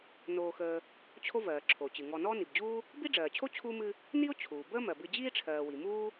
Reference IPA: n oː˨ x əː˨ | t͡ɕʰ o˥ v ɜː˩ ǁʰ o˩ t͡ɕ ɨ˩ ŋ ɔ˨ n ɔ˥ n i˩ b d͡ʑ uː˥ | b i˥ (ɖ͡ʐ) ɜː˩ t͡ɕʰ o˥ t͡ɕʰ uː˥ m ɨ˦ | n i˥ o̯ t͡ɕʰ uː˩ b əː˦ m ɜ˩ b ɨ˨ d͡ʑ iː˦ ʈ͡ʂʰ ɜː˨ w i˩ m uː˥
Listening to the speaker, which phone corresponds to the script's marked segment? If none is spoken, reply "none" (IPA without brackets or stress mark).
ɖ͡ʐ